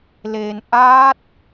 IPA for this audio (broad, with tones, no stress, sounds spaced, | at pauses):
l e˧ n ʔ aː˦˥ t̚